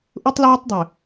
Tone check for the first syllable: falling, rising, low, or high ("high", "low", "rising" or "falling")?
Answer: high